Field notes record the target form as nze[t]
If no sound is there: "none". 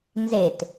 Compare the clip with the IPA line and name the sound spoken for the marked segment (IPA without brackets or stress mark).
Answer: t